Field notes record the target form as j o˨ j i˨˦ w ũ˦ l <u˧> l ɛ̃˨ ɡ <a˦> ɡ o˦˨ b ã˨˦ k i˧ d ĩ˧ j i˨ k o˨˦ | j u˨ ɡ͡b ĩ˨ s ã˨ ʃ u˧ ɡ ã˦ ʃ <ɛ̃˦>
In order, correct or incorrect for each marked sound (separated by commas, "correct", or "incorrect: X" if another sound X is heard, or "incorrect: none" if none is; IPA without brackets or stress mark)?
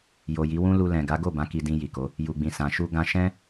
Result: correct, incorrect: a˨˦, correct